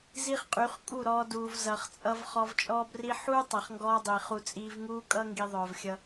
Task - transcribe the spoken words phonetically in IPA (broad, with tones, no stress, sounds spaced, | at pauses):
z i˦ χ qʼ y˨˦ χ kʼ u˦˨ ɾ ɔː˧ d uː˨ v z ʌ˨ χ t͡sʼ ʌ˧ v χ ɔ˧ v t͡ʃʼ ɔː˦ b r i˦ ħ uː˦ tˤ ʌ˨ χ ŋ ɡ ɔː˧ dˤ i˨ χ u˧ t͡sʼ iː˧ v ŋ uː˦ kʼ ʌ˦ ŋ ɡ i˦ ðˤ œː˧ v xʲ ʌ˦